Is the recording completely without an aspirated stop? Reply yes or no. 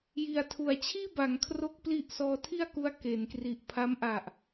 no